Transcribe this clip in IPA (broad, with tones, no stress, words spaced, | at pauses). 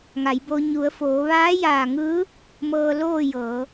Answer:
ŋa˩˧jbo˧ ɲu˩˧ə̯foː˩˧ ʋaː˧˥jaː˧˩ŋɯː˧˥ | mɤː˧ loː˥˨jɤː˩˧